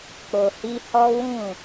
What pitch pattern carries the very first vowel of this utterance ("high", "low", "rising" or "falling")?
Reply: low